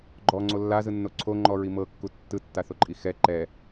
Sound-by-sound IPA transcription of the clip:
ɡ͡ǃ ɔ ŋ͡ǀ o lː a z ɯ nː o ǀʰ o ŋ͡ǃ ɔ ɹ i m ɤ kː u tː ɯ tː a θ o ǃʼ i x ɛ ǃ ɛ

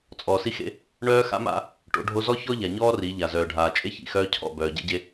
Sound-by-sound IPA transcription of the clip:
t͡sʼ ɔː˨ s i˦ x ḛ˦ | ɳ œː˦ x a̰˦ m a̰˦ | ʈ o̰˨˦ ɖʱ o˦ z ɔ˦ ç ɔ˦ ʎ a˨ ɲ ɔː˦ r i˨˦ ʎ a˨ z œː˨ ɖʱ aː˨ t͡ʃʼ e˦ ç ḭ˨ x œː˦ cʰ ɔ̰˦˨ b œː˨ ɟ ḛ˦ ɟ e˦

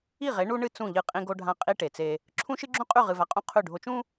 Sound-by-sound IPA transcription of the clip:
i˦˨ ʁ e˨˦ ɳ u˦ ɳ ɨ˦ t͡s ũ˦˨ ʎ ɨ˦ qʼ ĩ˦ ɡ o˦ ɖʱ ã˦ qʼ i˦ ʈ e˨ t͡s e˦ | ǁʰ ũ˦ ʃ ɨ˦ ɡ͡ǁ ũ˦ qʼ ʉ˦˨ ʁ ɨ˨ v a˨ qʼ ũ˦ qʰ ʉ˦˨ ɖʱ o˦ t͡ʃ ũ˦

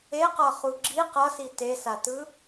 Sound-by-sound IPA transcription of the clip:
e q ʌ χ u ɡ͡ǁ i q ʌ s i t e s a t ɯ

